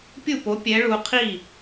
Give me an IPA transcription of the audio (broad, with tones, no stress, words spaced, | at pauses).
pʲu˥˩po˨˦pʲɛ˨˦ ɭu˨˦qʰi˥˩